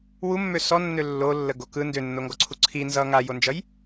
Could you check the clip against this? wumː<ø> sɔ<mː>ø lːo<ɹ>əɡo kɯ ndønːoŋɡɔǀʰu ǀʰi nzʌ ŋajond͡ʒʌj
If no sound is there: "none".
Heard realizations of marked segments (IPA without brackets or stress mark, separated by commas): ø, nː, lː